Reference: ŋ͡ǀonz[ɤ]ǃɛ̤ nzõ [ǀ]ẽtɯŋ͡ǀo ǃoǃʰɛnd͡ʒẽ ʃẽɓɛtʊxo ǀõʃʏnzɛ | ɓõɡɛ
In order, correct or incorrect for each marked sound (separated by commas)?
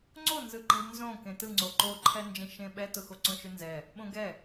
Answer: incorrect, incorrect